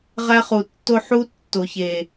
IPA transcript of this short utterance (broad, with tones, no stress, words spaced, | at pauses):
ʁæ˦χu˨tːo˦ ħu˦tːo˨çe˨